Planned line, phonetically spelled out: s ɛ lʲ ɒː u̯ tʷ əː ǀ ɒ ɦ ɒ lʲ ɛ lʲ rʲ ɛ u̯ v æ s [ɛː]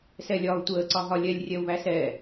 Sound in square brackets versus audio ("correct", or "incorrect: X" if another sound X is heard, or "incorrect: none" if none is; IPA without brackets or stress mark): correct